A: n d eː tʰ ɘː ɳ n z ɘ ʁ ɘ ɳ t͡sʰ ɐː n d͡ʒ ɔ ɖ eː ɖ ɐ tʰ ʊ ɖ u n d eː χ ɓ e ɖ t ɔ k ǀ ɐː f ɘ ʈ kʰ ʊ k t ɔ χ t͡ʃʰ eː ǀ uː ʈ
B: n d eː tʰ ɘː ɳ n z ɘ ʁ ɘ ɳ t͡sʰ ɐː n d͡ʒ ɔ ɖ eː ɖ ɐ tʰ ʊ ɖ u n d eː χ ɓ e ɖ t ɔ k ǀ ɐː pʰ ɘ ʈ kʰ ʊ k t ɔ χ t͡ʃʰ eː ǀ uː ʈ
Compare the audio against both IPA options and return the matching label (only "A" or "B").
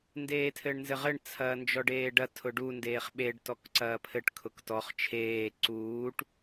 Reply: B